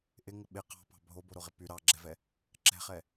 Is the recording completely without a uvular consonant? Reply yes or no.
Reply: no